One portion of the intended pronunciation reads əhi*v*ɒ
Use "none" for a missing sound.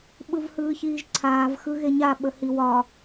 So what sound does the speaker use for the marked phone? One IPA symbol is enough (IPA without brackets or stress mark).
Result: w